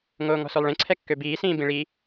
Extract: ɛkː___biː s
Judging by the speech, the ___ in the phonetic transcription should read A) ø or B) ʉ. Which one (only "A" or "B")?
A